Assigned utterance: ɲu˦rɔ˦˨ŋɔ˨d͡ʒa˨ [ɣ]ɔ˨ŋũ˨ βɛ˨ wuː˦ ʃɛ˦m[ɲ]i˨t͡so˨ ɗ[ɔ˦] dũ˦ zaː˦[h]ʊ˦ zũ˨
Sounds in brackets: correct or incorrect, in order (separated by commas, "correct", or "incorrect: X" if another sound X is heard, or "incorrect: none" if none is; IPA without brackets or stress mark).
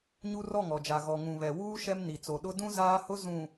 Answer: correct, incorrect: n, incorrect: ʊ˦, correct